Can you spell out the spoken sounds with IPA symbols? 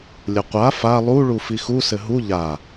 lʲ ə qʷ a f a lˠ u ɭ u f i x u s ɘ ɦ u ʎ a

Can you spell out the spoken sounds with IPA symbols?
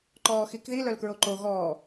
ǃ ɔː x i k ð i l œ l k ɹ o ǃ o ɣ ɔː

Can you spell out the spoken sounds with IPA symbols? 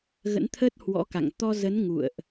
ɣ ə̰˧˥ n t̪ʰ ə˦˥ t̚ h w ɔ̰˧˥ k a̰˧˨ ŋ t̪ ɔ˧ z ə˨˦ n ŋ ṵ˧˨ ə̯ ʔ

